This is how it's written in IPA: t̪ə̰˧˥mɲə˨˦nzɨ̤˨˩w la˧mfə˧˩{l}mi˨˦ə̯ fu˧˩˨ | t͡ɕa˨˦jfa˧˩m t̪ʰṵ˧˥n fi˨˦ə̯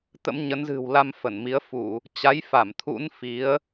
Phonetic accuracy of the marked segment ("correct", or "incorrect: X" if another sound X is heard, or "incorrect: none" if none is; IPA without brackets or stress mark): incorrect: n